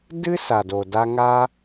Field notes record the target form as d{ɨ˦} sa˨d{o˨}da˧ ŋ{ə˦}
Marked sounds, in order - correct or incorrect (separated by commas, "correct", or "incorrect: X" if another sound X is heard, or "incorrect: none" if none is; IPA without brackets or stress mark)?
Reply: correct, correct, incorrect: a˦